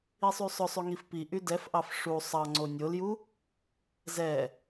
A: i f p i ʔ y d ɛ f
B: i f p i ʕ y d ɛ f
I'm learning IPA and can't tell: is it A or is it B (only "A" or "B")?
A